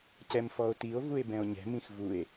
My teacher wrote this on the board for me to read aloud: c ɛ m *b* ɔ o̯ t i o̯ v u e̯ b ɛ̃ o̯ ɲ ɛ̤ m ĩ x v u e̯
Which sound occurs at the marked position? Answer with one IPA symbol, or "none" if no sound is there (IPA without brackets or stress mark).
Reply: f